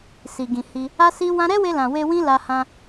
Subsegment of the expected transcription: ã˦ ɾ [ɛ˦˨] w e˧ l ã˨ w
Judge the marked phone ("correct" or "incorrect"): incorrect